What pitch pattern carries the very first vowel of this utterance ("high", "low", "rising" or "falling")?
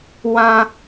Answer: high